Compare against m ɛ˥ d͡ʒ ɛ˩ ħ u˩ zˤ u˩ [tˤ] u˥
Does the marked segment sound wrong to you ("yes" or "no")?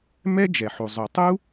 no